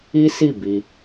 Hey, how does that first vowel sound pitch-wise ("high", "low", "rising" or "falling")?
high